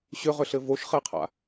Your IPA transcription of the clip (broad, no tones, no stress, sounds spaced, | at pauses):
ɕ ʏ ʁ ʏ ɬ ɘ v o ʃ χ e qʰ a̰